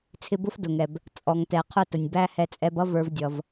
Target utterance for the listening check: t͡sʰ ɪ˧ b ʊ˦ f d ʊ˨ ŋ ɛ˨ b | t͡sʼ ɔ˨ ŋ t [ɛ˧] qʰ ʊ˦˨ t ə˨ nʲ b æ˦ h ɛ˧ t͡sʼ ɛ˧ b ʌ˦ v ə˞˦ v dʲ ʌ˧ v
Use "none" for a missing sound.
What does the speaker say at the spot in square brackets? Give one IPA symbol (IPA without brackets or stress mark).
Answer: ɛ˨